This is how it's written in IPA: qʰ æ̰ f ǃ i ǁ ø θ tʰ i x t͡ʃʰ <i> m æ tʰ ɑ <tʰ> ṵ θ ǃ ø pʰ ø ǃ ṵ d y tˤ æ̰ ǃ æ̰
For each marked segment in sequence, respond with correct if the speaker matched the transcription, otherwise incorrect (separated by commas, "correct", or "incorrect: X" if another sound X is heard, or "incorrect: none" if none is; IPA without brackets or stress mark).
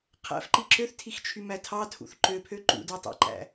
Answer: incorrect: y, correct